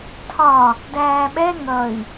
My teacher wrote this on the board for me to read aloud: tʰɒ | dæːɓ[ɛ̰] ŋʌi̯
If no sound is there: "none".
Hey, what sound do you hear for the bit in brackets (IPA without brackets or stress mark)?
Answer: ɛ